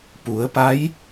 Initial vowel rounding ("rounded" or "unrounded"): rounded